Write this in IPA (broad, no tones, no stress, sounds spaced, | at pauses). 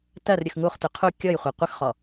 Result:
t ɜ r ɾʲ ʉ x ŋ u χ t ʉ qʰ u kʲ ɤ j χʷ ɜ qʷ ə x χ ɔ